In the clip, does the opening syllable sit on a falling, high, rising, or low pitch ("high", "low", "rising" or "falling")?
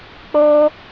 high